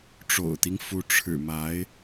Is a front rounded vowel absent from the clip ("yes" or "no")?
yes